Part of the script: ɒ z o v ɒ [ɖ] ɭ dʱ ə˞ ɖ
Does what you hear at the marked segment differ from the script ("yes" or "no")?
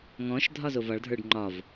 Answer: yes